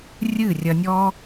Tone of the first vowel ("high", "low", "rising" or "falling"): falling